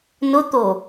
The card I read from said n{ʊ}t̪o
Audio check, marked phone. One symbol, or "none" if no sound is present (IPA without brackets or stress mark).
ʊ